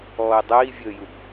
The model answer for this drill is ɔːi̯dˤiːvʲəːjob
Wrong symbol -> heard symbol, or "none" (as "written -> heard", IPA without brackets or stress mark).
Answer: o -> u